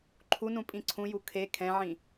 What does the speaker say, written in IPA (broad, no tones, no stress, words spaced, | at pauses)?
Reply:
ǃʰunũpʼĩ ǀʰũju kʰe kʰɛ̃ʕĩ